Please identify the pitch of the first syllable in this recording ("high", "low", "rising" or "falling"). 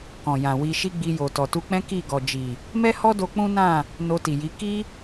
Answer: low